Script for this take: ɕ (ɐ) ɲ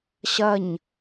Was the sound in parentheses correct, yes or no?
yes